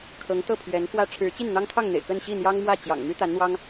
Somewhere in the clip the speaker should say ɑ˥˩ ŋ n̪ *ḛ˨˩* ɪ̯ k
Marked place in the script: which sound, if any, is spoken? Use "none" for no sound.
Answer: ḛ˨˩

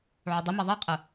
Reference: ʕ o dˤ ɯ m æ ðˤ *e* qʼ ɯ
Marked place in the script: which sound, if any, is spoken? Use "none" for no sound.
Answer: e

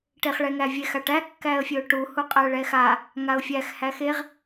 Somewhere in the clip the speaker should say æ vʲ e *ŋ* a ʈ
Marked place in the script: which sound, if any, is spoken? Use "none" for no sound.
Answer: x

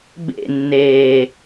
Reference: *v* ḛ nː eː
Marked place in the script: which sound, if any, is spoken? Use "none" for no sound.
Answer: b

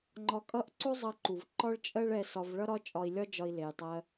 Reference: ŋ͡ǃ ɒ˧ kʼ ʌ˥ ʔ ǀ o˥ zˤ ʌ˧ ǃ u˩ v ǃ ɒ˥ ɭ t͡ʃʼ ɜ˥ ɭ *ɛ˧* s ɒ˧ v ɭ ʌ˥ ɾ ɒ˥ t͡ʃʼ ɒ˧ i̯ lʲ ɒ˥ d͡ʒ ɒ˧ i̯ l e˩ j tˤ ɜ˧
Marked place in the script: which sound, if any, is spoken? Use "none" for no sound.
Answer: ɛ˧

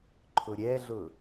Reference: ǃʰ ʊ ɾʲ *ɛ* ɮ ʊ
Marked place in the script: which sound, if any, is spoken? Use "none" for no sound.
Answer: ɛ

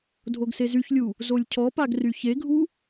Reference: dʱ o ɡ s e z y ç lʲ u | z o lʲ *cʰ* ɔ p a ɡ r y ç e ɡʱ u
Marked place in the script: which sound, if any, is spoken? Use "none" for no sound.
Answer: cʰ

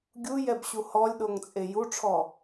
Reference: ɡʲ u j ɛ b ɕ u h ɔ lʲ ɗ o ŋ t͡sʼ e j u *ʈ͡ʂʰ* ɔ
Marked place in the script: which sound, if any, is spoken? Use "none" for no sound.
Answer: ʈ͡ʂʰ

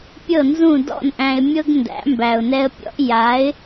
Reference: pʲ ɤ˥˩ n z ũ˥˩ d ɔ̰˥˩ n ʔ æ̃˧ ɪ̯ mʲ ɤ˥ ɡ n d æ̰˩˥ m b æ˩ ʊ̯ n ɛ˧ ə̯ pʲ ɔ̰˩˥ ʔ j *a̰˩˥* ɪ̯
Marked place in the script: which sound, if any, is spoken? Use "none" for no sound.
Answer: a˩˥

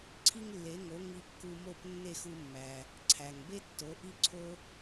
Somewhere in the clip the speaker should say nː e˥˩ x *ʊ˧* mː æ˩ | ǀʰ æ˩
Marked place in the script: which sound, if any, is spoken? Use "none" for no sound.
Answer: u˧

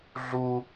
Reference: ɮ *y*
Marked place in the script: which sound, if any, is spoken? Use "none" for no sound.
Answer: u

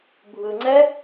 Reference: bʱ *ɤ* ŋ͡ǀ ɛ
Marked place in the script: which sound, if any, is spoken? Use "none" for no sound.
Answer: ɯ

